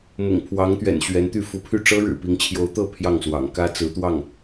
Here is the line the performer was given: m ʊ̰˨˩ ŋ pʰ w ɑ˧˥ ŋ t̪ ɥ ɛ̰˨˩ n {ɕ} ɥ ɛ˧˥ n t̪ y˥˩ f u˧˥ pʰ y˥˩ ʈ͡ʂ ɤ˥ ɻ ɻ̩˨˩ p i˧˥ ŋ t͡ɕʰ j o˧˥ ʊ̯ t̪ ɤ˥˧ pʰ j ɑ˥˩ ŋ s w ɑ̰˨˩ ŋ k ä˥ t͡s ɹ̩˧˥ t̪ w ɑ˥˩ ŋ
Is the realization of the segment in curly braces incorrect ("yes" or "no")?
no